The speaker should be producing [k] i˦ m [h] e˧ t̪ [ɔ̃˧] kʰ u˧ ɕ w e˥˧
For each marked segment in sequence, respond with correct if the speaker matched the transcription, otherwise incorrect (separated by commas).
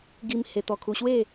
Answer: incorrect, correct, incorrect